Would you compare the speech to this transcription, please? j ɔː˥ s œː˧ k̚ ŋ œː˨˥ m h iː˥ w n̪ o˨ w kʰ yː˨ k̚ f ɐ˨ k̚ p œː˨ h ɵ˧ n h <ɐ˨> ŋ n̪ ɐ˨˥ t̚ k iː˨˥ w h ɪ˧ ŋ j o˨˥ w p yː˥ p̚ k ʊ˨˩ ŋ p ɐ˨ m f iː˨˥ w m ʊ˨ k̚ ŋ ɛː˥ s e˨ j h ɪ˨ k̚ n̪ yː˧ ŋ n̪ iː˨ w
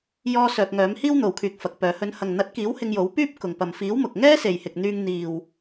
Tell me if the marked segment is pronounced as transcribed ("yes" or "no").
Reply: yes